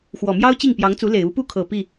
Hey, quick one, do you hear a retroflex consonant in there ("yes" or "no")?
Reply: no